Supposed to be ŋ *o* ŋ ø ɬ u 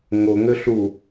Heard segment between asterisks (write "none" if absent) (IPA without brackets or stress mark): o